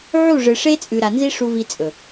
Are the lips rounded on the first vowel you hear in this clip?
yes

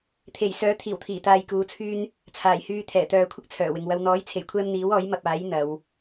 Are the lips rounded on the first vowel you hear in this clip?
no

